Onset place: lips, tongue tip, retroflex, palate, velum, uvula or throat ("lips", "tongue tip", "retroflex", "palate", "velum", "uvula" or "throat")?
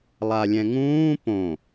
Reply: tongue tip